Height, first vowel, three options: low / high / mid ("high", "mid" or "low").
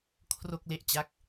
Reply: mid